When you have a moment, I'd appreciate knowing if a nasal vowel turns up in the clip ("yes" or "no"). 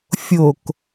no